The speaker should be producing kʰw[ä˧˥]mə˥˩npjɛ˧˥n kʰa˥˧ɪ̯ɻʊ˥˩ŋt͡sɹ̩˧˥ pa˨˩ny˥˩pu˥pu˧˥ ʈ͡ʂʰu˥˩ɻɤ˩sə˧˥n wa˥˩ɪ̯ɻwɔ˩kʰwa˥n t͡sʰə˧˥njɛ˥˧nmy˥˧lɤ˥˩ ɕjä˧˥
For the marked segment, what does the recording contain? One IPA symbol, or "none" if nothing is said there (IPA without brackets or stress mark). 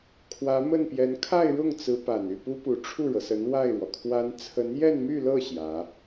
ä˧˥